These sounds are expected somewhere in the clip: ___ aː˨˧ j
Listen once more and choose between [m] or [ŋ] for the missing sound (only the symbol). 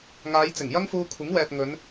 ŋ